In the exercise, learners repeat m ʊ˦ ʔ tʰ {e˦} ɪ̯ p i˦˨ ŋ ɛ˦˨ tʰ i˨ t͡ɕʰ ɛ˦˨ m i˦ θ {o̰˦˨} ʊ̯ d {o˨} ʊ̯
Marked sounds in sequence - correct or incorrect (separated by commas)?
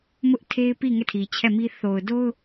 correct, incorrect, incorrect